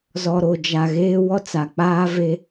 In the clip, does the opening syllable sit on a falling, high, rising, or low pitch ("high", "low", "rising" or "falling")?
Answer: low